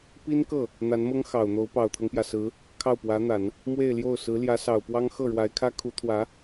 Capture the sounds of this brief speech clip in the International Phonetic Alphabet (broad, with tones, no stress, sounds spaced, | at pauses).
p i˥ n k ɤ˥˩ | n̪ a˧˥ n m ɤ˥ ŋ x ɑ˨˩ ʊ̯ n̪ o˧˥ ʊ̯ p ɑ˨˩ ʊ̯ t̪ʰ ɤ˦ ŋ p j ä˩ s ɹ̩˧˥ | kʰ ɑ˥˩ ʊ̯ p w ä˧˥ n̪ a˨˩˦ n | m w e˥˧ ɪ̯ l j o˥˩ ʊ̯ s ɹ̩˧˥ l j ä˧˥ s ɑ˨˩ ʊ̯ p w ɑ˥ ŋ x ɤ˥˩ ɻ w a˧˥ ɪ̯ kʰ ä˥ kʰ u˧˥ t̪ʰ w ä˧˥